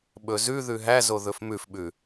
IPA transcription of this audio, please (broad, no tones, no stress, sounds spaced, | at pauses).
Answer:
ɓ ɵ z ʉ ð ʉ ɦ æ z o ð ɵ f m ʉ f ɓ ʉ